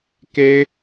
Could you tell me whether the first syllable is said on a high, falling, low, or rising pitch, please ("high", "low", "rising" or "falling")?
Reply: high